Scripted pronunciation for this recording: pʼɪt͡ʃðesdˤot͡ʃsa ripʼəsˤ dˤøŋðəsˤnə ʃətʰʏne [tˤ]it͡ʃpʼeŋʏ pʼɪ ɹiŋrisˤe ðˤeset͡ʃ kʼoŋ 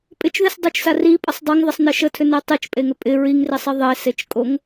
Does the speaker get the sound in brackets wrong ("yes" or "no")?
no